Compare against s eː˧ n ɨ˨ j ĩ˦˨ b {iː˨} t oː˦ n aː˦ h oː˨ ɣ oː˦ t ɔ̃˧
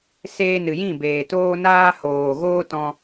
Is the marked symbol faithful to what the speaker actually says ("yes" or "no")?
no